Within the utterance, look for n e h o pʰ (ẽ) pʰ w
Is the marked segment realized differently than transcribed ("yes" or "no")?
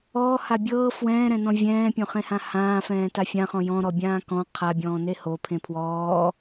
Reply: no